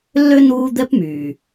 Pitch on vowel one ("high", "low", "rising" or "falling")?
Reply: high